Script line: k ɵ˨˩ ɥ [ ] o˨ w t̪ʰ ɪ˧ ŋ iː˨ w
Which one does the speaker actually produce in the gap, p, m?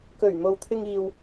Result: m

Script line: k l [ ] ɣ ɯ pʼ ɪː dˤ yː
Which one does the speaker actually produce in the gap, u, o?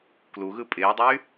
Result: u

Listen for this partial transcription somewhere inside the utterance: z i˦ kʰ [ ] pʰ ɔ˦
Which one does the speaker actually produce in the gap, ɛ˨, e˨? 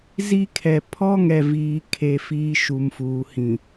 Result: ɛ˨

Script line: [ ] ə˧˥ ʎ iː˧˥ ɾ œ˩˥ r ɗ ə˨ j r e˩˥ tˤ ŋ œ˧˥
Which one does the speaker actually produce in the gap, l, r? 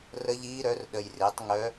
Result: r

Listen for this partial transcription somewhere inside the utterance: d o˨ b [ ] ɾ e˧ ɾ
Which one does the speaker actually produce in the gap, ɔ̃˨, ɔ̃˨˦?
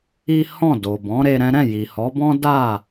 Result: ɔ̃˨˦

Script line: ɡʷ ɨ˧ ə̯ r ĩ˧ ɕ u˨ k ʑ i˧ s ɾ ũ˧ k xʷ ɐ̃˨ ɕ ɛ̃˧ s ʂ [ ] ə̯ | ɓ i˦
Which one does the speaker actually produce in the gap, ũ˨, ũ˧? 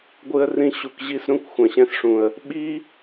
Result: ũ˨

